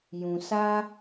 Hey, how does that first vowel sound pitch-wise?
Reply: low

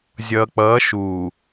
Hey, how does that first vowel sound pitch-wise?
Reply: low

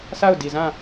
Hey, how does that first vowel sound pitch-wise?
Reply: falling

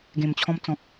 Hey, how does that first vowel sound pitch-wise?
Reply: low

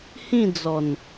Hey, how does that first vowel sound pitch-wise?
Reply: falling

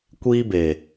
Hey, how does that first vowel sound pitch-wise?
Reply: high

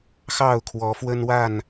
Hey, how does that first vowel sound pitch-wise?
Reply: falling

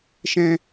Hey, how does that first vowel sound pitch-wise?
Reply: high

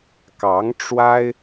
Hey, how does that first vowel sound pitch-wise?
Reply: rising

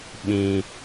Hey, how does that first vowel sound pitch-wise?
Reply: low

